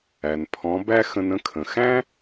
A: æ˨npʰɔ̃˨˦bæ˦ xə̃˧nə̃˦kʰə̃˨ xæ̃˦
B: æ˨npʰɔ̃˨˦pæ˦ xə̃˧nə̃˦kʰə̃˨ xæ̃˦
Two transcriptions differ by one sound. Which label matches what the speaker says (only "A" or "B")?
A